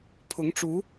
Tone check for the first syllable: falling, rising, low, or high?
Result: rising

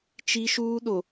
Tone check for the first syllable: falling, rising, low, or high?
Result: high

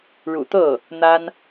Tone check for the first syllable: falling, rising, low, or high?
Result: low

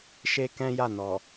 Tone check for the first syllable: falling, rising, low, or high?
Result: high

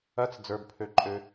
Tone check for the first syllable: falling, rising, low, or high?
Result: high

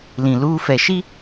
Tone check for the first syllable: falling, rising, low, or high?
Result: low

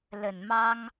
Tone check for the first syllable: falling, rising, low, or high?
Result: low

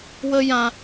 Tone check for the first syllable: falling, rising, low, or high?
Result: high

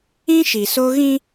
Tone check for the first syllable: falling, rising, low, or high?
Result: high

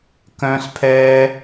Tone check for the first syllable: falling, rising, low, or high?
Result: high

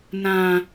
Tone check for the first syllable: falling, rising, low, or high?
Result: high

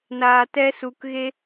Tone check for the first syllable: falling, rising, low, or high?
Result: low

